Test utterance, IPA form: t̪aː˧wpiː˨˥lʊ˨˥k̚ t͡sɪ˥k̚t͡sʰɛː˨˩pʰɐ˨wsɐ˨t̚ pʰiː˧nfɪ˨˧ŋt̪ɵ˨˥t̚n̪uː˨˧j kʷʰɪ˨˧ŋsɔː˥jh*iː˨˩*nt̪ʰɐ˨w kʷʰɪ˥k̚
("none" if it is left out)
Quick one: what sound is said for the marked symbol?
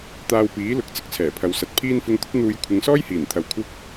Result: iː˨˩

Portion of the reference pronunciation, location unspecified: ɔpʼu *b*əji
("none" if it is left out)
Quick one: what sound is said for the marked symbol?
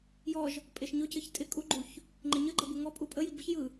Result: pʼ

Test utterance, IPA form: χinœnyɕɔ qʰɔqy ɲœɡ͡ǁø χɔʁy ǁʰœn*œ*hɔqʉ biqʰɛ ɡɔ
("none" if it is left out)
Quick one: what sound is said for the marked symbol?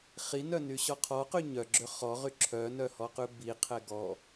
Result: œ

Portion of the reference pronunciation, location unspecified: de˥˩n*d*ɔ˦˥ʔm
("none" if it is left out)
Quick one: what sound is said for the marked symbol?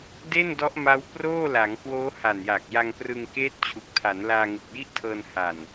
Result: d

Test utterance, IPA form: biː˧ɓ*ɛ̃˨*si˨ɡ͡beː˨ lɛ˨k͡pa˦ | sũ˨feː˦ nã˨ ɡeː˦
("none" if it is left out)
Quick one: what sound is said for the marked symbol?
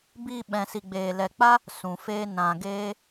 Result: ɛ̃˨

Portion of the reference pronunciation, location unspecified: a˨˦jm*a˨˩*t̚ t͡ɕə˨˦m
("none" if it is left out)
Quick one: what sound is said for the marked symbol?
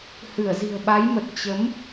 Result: ə˨˩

